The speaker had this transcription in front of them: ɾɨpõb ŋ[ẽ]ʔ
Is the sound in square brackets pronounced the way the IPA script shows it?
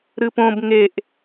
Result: no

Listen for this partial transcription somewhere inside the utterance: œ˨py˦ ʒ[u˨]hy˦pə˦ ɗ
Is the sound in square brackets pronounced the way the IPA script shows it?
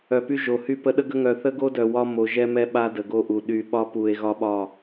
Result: no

